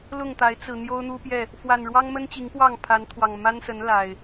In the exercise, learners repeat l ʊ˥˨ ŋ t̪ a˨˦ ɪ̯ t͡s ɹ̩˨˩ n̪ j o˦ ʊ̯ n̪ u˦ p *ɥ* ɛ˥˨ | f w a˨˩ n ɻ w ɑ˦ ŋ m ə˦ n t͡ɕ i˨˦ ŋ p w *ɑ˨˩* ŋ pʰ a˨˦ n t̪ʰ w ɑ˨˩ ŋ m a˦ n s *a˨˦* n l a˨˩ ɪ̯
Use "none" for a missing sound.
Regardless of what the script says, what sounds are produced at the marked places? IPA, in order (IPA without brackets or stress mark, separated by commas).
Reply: j, ɑ˥˨, ə˨˦